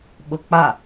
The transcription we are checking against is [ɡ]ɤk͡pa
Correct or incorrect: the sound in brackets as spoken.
incorrect: ɓ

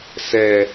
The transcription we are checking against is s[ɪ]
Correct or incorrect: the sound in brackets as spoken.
incorrect: ɛ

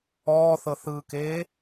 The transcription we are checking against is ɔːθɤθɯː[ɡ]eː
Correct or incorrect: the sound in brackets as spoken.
incorrect: k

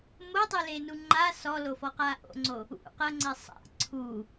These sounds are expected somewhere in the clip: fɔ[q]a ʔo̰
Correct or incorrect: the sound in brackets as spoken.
correct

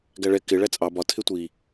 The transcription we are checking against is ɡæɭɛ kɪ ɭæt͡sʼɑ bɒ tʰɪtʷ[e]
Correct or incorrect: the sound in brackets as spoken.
incorrect: i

